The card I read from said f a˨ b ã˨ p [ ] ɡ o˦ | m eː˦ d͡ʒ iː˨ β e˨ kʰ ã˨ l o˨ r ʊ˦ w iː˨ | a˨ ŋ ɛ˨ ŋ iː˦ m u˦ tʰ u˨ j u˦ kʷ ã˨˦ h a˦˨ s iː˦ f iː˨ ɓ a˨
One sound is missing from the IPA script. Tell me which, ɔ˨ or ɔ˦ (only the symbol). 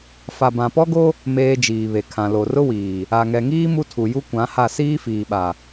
ɔ˦